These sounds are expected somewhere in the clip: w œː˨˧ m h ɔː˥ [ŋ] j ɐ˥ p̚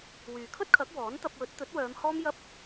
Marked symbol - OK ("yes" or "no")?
no